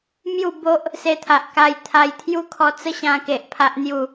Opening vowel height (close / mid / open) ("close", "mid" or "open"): close